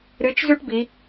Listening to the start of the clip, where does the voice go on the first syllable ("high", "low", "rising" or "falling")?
rising